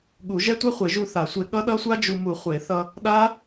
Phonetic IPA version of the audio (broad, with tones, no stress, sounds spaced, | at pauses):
ɠ u˨˩˦ ʒ ɛ˦˥ tʷ ɛ˦˥ χʷ e˨˩˦ ʒ u˧ θ a˨˩˦ sʷ e˧ ɠ ʌ˦˥ ɗ ʌ˦˥ sʷ a˦˥ d͡ʒ u˧ m u˨˩˦ χʷ e˨˩˦ θ ʌ˧ | ɗ a˦˥